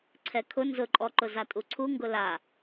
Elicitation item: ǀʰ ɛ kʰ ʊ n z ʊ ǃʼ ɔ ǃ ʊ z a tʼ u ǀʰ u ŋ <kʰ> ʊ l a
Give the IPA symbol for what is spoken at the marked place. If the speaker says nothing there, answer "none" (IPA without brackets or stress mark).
ɡ